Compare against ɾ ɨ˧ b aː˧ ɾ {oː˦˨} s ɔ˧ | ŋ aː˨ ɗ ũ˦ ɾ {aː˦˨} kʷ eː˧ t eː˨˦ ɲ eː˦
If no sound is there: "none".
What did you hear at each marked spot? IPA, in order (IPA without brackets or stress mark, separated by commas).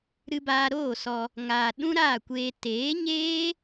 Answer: oː˦˨, aː˦˨